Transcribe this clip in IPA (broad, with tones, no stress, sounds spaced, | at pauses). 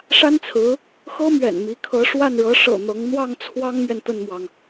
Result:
ʂ a˥ n t͡sʰ ɹ̩˧˥ | x ɤ˥ m ɥ ɛ̰˨˩ n m i˧˥ kʰ ɤ˧˥ ʂ w a˥˩ n ɻ ɤ˧˥ ʂ ɤ̰˨˩ n̪ ɤ˧˥ ŋ n̪ w ɑ˥˩ ŋ t͡sʰ w ɑ˥ ŋ m ɥ ɛ˨ n t̪ ə˥˩ n m w ɑ˩ ŋ